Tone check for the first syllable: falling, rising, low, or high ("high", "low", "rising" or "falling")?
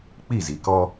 falling